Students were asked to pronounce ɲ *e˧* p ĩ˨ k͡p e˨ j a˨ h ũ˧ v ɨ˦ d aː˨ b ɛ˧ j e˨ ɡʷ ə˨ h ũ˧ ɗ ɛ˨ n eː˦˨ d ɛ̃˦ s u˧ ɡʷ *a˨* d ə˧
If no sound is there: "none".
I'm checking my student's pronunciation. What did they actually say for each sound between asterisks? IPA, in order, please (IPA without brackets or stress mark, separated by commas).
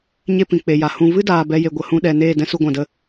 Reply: e˦, ã˨